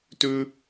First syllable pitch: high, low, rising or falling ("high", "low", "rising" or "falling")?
high